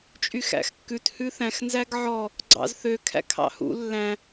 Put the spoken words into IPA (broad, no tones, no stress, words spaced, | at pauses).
t͡ʃʼyxæ̰xkːʉt hʉθæ̃xnzæɡ ʕɔ | ɡ͡ǀɑ̰zθøkʰæ̰ kʰɑ̰hṵ lːæ̃